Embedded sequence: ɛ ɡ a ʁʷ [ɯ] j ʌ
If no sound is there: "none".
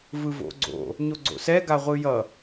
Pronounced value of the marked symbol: ɯ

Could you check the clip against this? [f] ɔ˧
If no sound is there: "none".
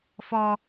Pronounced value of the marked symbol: f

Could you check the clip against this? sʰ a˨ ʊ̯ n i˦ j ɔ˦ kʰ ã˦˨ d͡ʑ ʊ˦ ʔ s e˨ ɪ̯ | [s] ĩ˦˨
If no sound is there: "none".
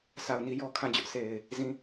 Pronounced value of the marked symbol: z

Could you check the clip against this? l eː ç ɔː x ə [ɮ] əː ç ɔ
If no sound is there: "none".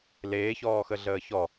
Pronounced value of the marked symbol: ɮ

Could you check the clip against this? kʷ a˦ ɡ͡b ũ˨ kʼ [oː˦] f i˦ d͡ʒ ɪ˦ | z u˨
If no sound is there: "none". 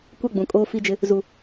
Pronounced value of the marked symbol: oː˦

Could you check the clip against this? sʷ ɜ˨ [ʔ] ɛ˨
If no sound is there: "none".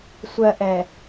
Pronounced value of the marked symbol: ʔ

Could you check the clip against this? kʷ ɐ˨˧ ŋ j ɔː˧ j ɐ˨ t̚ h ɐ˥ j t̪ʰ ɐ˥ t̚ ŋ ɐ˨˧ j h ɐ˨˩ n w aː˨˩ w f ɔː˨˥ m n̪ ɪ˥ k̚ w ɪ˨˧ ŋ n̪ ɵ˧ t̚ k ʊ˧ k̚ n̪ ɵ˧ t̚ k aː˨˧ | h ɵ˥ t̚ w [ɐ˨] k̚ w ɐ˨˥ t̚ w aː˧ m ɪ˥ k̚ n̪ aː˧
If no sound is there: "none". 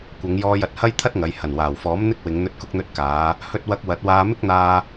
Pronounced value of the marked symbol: ɐ˧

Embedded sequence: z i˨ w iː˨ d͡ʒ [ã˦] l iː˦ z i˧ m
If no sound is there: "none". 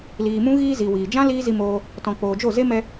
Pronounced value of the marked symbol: ã˦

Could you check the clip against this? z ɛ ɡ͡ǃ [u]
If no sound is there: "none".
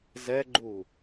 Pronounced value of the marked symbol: u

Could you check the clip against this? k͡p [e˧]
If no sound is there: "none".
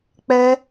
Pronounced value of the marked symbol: ɛ˧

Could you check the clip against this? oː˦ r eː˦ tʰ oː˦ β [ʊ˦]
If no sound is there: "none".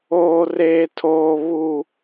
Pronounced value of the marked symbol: u˦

